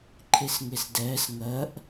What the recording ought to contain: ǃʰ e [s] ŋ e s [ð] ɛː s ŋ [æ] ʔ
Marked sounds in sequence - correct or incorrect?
correct, incorrect, incorrect

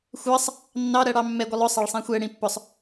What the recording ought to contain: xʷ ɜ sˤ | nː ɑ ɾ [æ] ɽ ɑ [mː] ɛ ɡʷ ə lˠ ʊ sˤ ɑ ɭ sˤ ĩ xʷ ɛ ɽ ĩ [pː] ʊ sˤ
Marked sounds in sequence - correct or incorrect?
incorrect, correct, correct

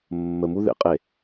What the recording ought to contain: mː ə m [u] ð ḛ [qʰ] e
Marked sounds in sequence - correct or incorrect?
correct, incorrect

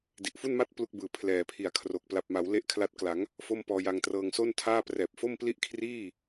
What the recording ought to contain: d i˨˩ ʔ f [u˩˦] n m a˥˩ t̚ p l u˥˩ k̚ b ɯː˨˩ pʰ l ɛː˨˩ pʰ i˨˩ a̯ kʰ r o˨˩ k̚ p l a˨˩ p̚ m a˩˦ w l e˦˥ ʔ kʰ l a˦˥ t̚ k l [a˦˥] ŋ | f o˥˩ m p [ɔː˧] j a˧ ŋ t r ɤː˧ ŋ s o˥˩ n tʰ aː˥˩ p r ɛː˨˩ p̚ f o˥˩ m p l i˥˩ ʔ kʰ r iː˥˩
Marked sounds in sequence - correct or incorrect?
incorrect, incorrect, correct

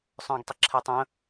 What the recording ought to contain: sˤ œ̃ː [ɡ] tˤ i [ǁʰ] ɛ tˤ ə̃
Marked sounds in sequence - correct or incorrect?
correct, correct

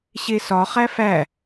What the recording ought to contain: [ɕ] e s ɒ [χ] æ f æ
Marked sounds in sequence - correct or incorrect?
correct, correct

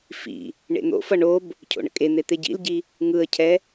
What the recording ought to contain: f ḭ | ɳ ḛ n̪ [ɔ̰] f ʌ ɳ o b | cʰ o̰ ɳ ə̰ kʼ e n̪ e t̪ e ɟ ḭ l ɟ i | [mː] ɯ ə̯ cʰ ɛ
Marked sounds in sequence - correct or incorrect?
incorrect, incorrect

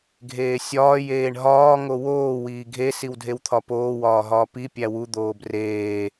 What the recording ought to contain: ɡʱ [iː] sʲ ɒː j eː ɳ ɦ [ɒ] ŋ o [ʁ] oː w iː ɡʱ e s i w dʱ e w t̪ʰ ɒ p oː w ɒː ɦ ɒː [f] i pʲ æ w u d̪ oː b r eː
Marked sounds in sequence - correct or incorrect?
incorrect, incorrect, incorrect, incorrect

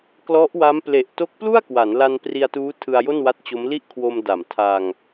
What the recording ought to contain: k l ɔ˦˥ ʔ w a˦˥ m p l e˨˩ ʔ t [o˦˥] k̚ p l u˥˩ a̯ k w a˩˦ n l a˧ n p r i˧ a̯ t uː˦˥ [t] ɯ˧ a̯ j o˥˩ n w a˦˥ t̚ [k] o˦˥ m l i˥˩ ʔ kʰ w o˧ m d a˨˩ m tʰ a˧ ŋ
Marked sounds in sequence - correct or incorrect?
correct, incorrect, incorrect

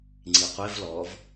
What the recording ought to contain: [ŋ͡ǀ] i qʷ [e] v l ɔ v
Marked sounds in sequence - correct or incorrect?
correct, correct

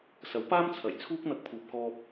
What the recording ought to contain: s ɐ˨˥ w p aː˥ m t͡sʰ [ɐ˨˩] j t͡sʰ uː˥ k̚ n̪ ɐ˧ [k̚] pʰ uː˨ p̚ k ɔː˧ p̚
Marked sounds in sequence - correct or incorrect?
correct, correct

